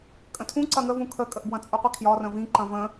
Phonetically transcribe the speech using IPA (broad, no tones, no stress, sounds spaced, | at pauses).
kʼ ə̃ tʰ ũ ǀ ɐ ŋ ə v ũ kʰ ə kʼ ə ʔ b w ɐ̃ t͡sʼ u qʷ i kʰ j ɒ r ə̃ v ĩ ǃ ɐ̃ v ə̃